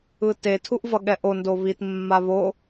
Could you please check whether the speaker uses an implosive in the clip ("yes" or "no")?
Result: yes